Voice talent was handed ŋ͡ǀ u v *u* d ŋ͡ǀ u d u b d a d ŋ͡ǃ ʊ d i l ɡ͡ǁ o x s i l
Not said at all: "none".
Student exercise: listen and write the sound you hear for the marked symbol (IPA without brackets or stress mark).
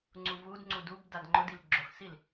u